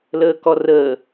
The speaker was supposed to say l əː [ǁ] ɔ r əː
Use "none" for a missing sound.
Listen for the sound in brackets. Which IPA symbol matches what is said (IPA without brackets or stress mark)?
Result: k